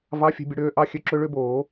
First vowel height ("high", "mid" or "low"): low